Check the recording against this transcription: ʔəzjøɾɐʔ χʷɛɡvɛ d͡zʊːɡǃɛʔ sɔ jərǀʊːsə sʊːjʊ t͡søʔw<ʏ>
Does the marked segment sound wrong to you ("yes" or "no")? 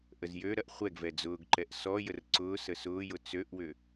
no